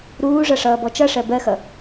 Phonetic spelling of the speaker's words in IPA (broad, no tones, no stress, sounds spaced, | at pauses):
ɾ uː ʐ ʌ ʂ ʌː b ɔ t͡ʃ ʌ ʂ ɜ b ɜ x ʌ